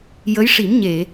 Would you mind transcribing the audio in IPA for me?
j ə˧˥ j ʂ i˨˩˦ m ɲ e˨˩˨

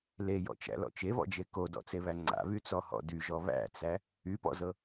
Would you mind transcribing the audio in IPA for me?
l e j ɔ̰ t͡ʃ æ̰ l ɔ̰ t͡ʃ e β ɔ̰ d͡ʒ e k o d ɔ̰ t͡s e β æ ŋ͡ǀ a̰ β y t͡s ɔ h ɔ̰ d y ʒ ɔ β æ̰ t͡s æ | y p ɔ̰ z ɤ

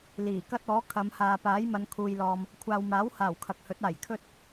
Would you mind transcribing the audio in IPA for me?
l iː˨˩ k ɐ˥ t̚ ɔː˨˥ kʰ ɐ˨˧ m h aː˨ p aː˨˥ j m ɐ˨˧ n kʰ uː˨ j l ɔː˨ m | kʷʰ aː˨ w m aː˨˥ w h aː˨˩ w kʰ ɐ˨ k̚ h ɵ˨˥ t̚ aː˨˩ j kʰ ɵ˥ t̚

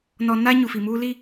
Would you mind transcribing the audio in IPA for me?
n ɔ˨ n aː˦ ɲ u˨ f i˨ m uː˦ l i˦

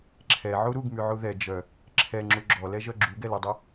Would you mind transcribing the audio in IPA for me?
ǁʰ ɛ ʕ u ɾ u ɡ m y ʕ u ð ɛ d͡ʒ œ | ǁʰ ɛ ŋ͡ǁ u ɡ͡ǁ ɔ l ɛ ʒ œ ɡ͡ǁ u ɡ ɛ l e dˤ ɛ

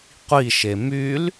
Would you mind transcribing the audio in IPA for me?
qʷ i ʃ e m y l

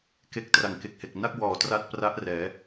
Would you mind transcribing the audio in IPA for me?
k e˥˩ k̚ t r a˨˩ ŋ k e˨˩ k̚ h e˨˩ k̚ n a˥˩ k̚ w ɔː˨˩ t r a˥˩ t̚ p r a˦˥ ʔ r ɛː˩˦

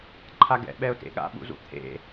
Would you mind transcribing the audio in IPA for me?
ǃʰ a ɡ ɛ̰ ɓ ɛ ʊ̯ t ḛ ɠ a̰ ɓ ṵ z ṵ t̪ʰ ḛ

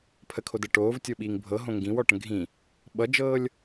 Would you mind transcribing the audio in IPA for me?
pʰ ə kʰ o d ɤ ʈ oː v tʲ o ɓ iː ŋ bʱ ɤ ɦ õ ŋ ɡ ĩ w ɔ ʈ ə̃ ɡʱ ĩ | ɓ ʌ d͡ʒ ɤː lʲ

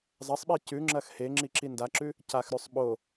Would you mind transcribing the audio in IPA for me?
zˤ ɐ sˤ ɓ i c ʉ ŋ͡ǁ ɐ x h e ŋ͡ǁ i ǁ i n d a ǁ ʉ | c a x ɾ ʉ sˤ ɓ o

